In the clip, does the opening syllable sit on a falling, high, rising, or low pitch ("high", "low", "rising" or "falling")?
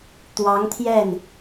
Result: rising